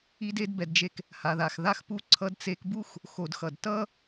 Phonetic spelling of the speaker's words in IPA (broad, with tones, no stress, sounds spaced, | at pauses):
i˧ d e˧ d b ɛ˨ d d͡ʒ e˧ k | h a˨ ð a˨ x ð a˦ x p u˧ ǀʰ ʌ˧ d t͡s e˧ k b u˦ x | x o˨ d x ʌ˨ d t ʌ˦